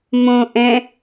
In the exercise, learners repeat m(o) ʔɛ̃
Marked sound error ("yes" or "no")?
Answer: yes